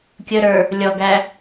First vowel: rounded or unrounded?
unrounded